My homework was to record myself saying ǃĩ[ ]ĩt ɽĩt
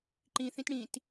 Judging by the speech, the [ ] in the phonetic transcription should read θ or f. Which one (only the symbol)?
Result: θ